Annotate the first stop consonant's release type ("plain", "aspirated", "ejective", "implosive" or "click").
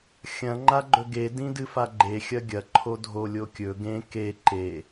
click